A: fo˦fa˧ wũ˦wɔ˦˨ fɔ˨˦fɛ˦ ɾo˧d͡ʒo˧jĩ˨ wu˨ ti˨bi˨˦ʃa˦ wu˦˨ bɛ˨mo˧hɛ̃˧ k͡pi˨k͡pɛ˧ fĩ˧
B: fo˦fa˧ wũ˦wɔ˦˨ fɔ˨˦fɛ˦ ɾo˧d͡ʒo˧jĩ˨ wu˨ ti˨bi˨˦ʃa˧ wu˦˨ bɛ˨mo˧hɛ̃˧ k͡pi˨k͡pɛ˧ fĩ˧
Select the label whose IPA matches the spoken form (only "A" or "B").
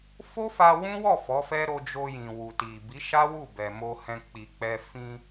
A